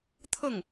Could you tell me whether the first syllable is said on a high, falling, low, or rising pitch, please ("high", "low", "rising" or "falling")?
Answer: falling